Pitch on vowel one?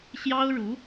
high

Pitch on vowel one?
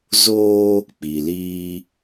high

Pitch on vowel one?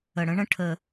low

